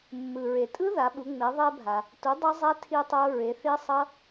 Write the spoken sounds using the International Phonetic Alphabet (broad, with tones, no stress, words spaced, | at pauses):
mːɯ˩ɹe˩tʼɯ˦˥ ða˩˥ɓu˩˥ ŋ͡me˩˥ ðˤe˦˥ bʱa˩ | tu˩˥ dˤʌ˦˥zˤɛ˦˥ tʰi˦˥tˤo˦˥ ɹe˩˥θi˦˥sˤʌ˦˥